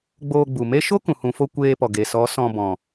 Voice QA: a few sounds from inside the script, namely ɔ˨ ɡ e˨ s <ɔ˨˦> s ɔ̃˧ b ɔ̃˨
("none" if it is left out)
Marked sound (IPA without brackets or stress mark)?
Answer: ɔ˨˦